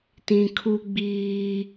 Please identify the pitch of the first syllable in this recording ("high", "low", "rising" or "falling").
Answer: low